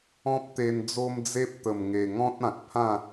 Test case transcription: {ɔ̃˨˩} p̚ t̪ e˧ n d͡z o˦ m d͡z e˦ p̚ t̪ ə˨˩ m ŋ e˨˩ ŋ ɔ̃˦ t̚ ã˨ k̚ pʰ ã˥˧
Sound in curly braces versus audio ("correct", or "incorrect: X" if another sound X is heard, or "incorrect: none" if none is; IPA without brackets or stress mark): incorrect: ɔ̃˦